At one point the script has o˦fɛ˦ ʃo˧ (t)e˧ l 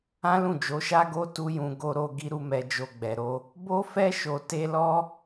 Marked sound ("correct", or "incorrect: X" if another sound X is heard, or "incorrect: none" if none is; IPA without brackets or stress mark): correct